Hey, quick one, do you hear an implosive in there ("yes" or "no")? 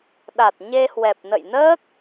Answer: yes